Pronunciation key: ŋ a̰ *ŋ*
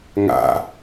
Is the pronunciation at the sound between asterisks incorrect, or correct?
incorrect